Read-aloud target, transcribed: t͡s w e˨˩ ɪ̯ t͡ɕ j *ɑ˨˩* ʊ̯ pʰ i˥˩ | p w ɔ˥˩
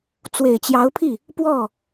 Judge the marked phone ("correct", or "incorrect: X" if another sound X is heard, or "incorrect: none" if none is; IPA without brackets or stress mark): incorrect: ɑ˧˥